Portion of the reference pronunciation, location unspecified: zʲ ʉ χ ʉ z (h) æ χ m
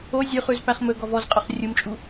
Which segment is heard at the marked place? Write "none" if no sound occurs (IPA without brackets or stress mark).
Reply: p